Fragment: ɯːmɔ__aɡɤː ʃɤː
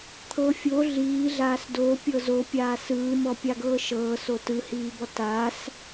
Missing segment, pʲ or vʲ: pʲ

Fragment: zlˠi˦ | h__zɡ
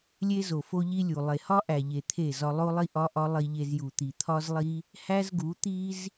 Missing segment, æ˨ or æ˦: æ˦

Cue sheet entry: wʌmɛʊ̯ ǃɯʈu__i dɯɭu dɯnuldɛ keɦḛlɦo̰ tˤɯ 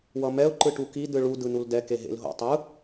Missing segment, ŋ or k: k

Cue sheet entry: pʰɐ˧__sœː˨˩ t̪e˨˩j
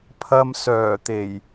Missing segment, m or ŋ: m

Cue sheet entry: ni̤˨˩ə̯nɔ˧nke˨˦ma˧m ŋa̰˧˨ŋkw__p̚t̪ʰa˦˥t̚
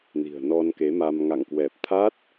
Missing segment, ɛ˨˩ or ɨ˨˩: ɛ˨˩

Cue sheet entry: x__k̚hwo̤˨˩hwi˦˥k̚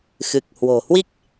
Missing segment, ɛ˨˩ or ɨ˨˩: ɨ˨˩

